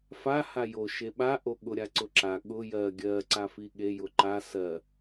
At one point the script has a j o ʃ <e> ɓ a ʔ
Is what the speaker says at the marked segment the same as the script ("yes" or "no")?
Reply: yes